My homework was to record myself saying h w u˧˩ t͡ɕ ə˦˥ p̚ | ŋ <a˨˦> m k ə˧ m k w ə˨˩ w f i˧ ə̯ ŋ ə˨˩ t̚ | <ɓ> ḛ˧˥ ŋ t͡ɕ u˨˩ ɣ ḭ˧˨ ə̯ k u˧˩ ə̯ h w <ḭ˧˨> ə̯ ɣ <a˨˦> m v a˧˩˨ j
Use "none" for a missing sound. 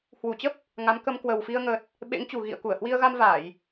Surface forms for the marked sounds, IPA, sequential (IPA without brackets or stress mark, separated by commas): a˨˦, ɓ, i˧, a˧